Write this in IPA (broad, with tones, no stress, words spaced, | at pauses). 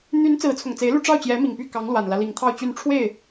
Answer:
n̪y˧˥n t͡sɹ̩˧˥t͡sʰʊ˨˩ŋt͡se˧˥ɪ̯lu˥˧ ʈ͡ʂɑ˥˩ʊ̯t͡ɕjɛ˧˥mi˨˩ŋ py˥˩kɑ˧˥ŋlwa˨˩nlä˦ li˧˥ŋt̪ʰɑ˥˧ʊ̯t͡ɕy˥˧n ʈ͡ʂʰwe˥˩ɪ̯